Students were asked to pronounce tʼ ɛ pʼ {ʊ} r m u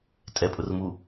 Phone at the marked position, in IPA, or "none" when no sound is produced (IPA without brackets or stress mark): ʊ